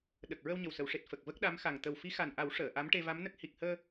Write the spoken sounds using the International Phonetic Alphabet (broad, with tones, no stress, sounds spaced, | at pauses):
ɗ ə˨˩ k̚ ɹ ə˧ w ɲ ə˨˩ w s ə˨˩˨ w ʂ e˨˩ t̚ f ə˨˩ k̚ v ə˦˥ k̚ ɗ a˧˥ m x a˨˩ ŋ t̪ ə˨˩ w f i˧˥ x a˨˩ n ʔ a˨˩˦ w ʂ əː˨˩˨ ʔ a˧˥ m ʈ e˧ v a˧˥ m n ə˦˥ k̚ h i˨˩ k̚ h əː˧